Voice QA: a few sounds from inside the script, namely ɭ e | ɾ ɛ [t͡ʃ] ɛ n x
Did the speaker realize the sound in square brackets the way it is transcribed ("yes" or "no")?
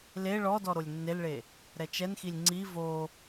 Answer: yes